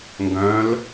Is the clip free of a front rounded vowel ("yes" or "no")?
no